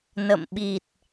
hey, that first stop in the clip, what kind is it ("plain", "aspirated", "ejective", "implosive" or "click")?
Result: implosive